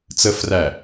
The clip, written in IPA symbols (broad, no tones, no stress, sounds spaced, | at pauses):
t͡s ə f r æ